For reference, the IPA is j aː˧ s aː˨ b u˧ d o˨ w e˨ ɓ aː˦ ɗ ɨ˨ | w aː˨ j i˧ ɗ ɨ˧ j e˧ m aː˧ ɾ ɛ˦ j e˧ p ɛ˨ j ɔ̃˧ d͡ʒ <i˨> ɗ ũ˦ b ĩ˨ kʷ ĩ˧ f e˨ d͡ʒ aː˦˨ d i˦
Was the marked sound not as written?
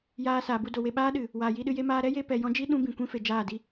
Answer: yes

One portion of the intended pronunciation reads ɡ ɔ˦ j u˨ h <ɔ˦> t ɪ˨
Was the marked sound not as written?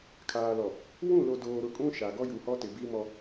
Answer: no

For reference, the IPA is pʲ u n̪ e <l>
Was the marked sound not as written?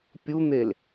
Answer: no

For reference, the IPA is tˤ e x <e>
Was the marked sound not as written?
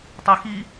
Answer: yes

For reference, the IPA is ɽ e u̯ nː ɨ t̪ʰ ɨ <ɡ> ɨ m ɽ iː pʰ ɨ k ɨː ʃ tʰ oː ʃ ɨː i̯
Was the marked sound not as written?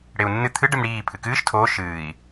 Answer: yes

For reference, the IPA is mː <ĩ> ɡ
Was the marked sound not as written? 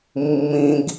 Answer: no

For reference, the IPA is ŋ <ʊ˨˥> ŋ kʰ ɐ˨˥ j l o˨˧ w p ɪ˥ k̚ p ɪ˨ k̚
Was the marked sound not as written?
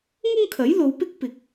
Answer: yes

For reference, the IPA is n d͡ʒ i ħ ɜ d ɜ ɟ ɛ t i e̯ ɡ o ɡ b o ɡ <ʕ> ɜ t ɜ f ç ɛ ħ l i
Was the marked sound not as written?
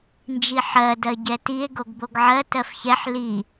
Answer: no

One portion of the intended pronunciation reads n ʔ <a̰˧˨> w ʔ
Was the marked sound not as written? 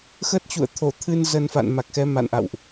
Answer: no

